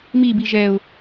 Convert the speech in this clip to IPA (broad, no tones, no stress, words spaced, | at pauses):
mibi ʒɛʊ̯